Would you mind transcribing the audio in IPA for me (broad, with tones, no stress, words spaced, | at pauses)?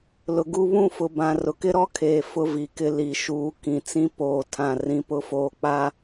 lʊ˨ɡu˦ βũ˦˨fʊ˨ bã˨ rʊ˨kɪ˦ɾɔ˦kʰeː˨ fʊ˦vi˨kɪ˦ li˨ʃuː˨˦ kĩ˨t͡sĩ˦ poː˦˨tʰã˦˨ rĩ˦pʊ˦ foː˦k͡pa˦